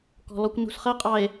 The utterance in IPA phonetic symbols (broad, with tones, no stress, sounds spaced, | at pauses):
k ɔ̤˨ l ɔ˦ kʷ n ṳ˨ s χ ɜ˦ qʼ ɑ˨ e̯